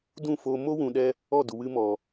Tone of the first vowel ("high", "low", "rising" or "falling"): falling